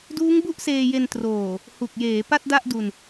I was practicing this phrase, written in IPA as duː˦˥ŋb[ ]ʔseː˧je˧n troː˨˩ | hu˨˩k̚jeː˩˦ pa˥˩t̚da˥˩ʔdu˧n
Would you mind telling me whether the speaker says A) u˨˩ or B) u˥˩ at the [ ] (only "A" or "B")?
B